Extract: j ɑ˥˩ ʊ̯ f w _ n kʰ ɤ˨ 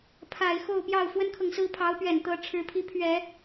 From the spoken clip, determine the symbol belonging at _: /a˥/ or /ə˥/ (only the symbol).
ə˥